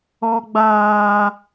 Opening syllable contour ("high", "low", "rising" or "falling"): high